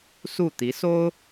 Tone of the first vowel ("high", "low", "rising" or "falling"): falling